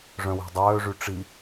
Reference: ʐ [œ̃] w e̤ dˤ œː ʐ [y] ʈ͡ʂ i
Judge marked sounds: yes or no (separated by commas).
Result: yes, yes